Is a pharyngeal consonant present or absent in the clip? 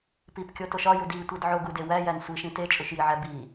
present